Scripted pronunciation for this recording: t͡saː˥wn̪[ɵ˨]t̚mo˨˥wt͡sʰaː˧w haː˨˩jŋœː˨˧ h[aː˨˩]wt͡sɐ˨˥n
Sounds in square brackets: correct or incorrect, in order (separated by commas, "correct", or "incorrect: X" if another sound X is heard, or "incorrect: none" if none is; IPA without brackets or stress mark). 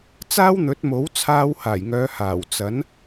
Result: incorrect: ɵ˨˥, correct